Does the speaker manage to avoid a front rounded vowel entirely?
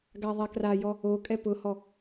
yes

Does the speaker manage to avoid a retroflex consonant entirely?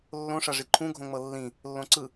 no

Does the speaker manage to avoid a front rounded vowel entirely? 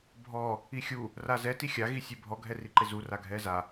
yes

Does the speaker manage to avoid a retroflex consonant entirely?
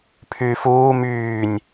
yes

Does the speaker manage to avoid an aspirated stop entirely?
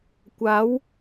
yes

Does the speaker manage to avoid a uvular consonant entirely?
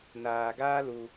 yes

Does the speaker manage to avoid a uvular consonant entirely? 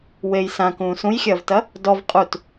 no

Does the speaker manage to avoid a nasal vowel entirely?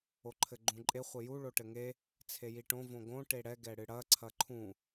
no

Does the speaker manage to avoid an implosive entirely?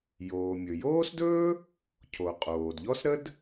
yes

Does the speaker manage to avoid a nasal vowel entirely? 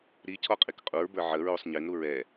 yes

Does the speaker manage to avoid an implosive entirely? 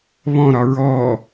yes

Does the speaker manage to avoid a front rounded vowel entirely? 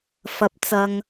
yes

